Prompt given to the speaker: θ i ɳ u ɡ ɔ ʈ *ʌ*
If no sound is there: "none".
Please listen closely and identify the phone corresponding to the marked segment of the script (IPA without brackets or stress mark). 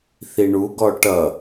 ʌ